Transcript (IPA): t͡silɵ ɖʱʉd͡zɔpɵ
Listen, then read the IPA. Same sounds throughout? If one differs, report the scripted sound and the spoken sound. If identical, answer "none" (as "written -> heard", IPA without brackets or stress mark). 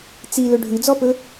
none